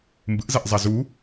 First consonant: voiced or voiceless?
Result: voiced